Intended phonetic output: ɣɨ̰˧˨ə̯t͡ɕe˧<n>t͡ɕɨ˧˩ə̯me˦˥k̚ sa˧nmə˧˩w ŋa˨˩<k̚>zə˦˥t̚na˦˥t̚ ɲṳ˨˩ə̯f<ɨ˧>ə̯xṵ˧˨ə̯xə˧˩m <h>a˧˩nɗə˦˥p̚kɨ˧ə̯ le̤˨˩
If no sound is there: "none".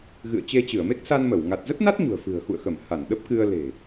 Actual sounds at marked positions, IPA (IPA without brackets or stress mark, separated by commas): none, t̚, ɨ̤˨˩, h